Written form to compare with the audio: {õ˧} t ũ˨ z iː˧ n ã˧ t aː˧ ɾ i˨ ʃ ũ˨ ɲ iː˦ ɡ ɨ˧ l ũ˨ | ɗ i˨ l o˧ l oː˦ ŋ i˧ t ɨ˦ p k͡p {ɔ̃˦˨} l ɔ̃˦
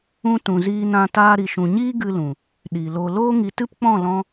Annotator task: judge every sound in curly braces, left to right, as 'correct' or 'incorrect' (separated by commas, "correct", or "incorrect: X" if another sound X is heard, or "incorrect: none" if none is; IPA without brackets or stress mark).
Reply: incorrect: ũ˧, correct